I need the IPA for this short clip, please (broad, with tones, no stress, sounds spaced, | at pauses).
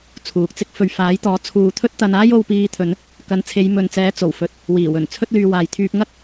t͡sʰ uː˨ k̚ t͡s ɪ˥ k̚ f ɵ˨ ɥ f aː˨˥ j t̪ ɔː˨˥ t͡sʰ uː˨ t̪ʰ ɵ˥ t̚ t̪ ɐ˧ n aː˥ j o˧ w p iː˧ t̪ʰ ɵ˨˧ n | k ɐ˨ n t͡sʰ e˨˧ j m ɵ˨ n t͡s ɛː˨˥ t͡s o˨˩ w f ɵ˨ t̚ | w iː˨˩ w ɵ˨˩ n t͡sʰ ɵ˥ t̚ l yː˧ w aː˨ j t̪ʰ yː˧ p̚ ŋ ɐ˥ k̚